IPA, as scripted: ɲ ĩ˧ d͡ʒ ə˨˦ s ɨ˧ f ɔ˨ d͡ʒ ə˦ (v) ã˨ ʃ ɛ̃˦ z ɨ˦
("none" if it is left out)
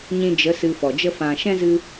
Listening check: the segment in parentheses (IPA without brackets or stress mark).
f